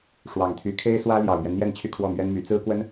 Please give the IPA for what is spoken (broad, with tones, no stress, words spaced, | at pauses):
ʂwɑ˨˩ŋt̪ʰy˧˥ kʰe˥ɪ̯swä˥ ljɑ˨˩ʊ̯mɥɛ˦nn̪jɛ˥˧n t͡ɕʰy˥˧kʰwɔ˥˩mɥɛ˥nmy˧˥ t͡sɹ̩˥kwə˥n